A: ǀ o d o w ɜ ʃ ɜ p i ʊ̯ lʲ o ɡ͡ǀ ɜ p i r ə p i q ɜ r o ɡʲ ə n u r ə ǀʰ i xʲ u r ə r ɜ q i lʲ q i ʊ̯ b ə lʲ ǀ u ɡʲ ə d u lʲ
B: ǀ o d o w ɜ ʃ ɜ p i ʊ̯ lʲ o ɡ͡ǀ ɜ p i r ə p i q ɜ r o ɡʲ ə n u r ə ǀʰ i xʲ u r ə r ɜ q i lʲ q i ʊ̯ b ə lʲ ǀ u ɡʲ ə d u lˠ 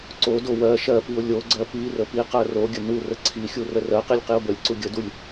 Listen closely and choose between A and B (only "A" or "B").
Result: A